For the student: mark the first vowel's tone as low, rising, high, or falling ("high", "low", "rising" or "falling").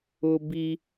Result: high